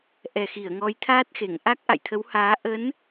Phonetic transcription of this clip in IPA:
ʔɛ˨˩xi˧˩ə̯ ŋɔ˨˦jt̪ʰaː˦˥t̚xe˧˩ŋ ʔa˦˥k̚ʔa̰˧˨jt̪ʰə˨˦w haː˨˦ ʔə˨˦n

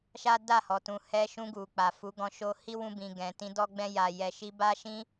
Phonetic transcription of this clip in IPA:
ʃa˦da˦˨hɔ˨tũ˨ hɛ˧ʃũ˧ɡu˨ k͡pa˨fu˨˦ɡɔ̃˧ ʃo˧ hi˦wũ˧bĩ˨ ɡɛ̃˨tĩ˧ dɔ˧ɡ͡bɛ̃˧ja˨jɛ˨ ʃi˧ba˦ʃĩ˦

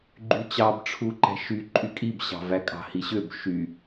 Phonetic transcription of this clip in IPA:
ɡ͡ǃyt͡ɕɑb ʈ͡ʂʰuǃæ̤ʃy ǃʼykʼib ɕɑ̤vækʼɑ̤ hiɕøb ʃy

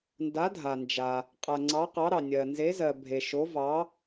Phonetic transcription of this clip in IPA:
nda˩˥dʱa˩nd͡ʒa˩ | qʼa˩ ŋ͡ǀɑ˩˥ qɑ˩˥ɾɑ˩ nʲɜ˩ nze˩˥zɜ˩ bʱe˩ʃo˩˥vɑ˩˥

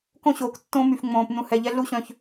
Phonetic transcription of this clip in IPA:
kõ˦ɕoː˨k tːõ˦my˨fŋ͡mõː˨p nũ˨hɛ˨ ʎɛ˦ɮu˦ ɕœ̃˨ç

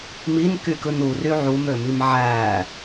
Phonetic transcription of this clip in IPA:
minkykɯn ury ʕumømim ʕæ

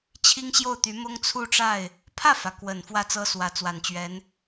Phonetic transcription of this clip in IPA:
t͡ɕʰi˥ŋɕjo˥˩ʊ̯t̪y˧˥mʊ˥ŋ t͡sʰu˥˧ʈ͡ʂa˥˩ɪ̯ | pʰä˥˩fä˩ kwə˨˩n fwä˥˩t͡sɤ˥swä˧˥ t͡swa˨˩nt͡ɕɥɛ˧˥n

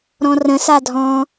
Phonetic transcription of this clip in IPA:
ɾɔ̃rə̃ sadʱɔ̃

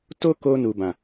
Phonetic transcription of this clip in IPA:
to˦ko˧nu˨bã˨

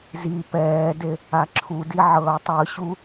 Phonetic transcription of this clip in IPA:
zi pɛːde | aǁʰudi ʕɤːtˤɯɕu

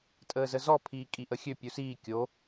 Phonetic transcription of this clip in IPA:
tʼəːzəzɔ pʰiːkʼiʔəxʲø pʲusiː kʲo

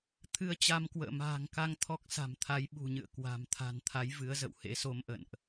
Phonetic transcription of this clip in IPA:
t̪ʰɨ˧ə̯t͡ɕa˧m kwə̰ː˧˨ma̤ː˨˩ŋka˧ŋ t̪ʰɔ˦˥k̚sa̤˨˩m t̪ʰa˨˦jɓṳ˨˩ɲɨ̰˧˨ə̯ kwa̤˨˩m t̪ʰa̤˨˩nt̪ʰa˨˦j vɨ˨˦ə̯ zə̰˧˨whḛ˧˥so˧mʔə̰˧˨nʔ

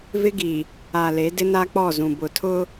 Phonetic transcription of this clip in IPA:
vɪ˦ɡi˨ | a˨le˨˦ dɪ˦na˦k͡pɔ˦˨ zũ˨bʊ˨ tʰʊ˦

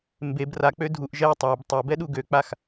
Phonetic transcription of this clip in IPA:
mbeb rak͡pø dʱuʔ ʒɛ tˤab tˤobɛɗu ɡøk͡pax

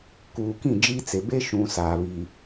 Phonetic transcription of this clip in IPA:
kuː˨kĩ˦˨d͡ʒiː˦t͡se˨ be˦ʃũ˨ saː˨βiː˨

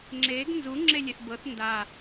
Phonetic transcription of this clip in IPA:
ŋ͡ǁeɡ nzu ŋ͡ǁelʲeθbɤθ nda

